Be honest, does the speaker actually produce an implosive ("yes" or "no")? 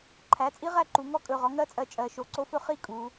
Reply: no